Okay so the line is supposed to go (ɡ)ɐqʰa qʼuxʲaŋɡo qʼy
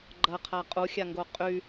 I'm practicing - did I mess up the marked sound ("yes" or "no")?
yes